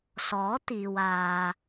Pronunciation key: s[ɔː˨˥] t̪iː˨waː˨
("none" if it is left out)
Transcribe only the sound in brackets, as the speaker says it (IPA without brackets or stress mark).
ɔː˨˥